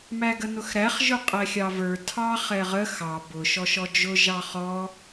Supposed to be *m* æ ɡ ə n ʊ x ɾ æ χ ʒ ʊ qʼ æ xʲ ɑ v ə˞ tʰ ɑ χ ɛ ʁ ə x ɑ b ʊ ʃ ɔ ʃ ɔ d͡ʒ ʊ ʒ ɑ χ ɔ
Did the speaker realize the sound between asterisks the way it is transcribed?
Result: yes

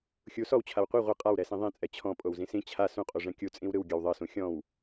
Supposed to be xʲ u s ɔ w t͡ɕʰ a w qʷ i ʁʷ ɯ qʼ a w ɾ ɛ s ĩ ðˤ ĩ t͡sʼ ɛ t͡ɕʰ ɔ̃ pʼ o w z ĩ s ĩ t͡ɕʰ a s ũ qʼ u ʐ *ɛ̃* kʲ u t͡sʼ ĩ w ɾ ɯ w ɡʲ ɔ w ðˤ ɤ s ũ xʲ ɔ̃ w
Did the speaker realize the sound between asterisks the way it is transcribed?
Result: yes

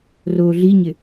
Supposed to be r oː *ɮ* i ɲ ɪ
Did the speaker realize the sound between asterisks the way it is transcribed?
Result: yes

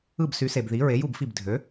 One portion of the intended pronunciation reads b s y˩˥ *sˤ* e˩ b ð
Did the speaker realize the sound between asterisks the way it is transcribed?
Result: no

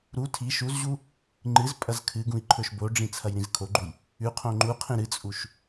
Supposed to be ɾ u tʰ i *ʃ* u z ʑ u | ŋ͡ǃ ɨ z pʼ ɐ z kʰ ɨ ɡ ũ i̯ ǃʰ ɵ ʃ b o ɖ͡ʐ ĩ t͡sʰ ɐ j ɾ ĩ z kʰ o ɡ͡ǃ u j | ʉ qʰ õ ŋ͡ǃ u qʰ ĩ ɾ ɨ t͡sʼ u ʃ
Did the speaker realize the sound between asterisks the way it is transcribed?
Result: yes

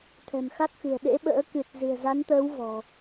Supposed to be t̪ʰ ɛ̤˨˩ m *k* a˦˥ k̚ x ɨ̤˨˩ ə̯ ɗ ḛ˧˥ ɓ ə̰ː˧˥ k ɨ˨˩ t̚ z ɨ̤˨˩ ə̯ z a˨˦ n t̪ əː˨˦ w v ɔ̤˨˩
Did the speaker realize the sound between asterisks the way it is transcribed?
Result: no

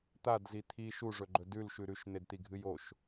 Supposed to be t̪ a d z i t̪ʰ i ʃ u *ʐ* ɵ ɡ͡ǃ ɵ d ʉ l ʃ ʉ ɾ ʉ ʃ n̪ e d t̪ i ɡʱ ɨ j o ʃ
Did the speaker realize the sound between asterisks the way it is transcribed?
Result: yes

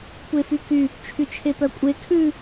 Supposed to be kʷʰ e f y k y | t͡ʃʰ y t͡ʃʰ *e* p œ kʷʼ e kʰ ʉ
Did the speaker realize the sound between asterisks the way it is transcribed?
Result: yes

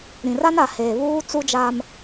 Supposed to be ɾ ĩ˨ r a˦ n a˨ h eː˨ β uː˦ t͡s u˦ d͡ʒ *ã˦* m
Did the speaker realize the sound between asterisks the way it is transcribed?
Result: no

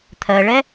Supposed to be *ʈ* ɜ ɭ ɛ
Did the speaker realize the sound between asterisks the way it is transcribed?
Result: no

